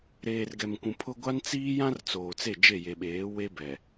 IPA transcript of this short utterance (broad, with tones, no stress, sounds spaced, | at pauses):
ɾ eː˨ r ɡ ɛ˨ m kʷ ũ˨ pʰ ʊ˦ ɡʷ a˦ n t͡s iː˦ j ã˦ r t͡s oː˨ t͡s e˦˨ d͡ʒ e˦˨ j e˨ ɓ eː˨˦ w e˦ b ɛ˨